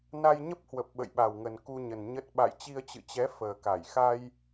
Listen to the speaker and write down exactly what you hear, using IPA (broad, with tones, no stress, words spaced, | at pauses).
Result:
na˧jɲə˦˥p̚hwə˨˩p̚ ɓə̰˧˨jɓa˨˩wŋə˨˩n ku˧ɲə˨˩n ɲə˦˥t̚ ɓa̰˧˨jt͡ɕi˧ə̯t͡ɕɨ̰˧˨t͡ɕɛ˨˦ fəː˨˩ka˧˩j xa˧j